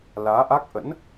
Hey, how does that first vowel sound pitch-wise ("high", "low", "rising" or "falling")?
rising